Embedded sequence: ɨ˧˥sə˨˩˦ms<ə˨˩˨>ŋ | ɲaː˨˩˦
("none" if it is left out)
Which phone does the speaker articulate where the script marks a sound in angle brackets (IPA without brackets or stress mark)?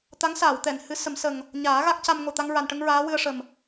ə˨˩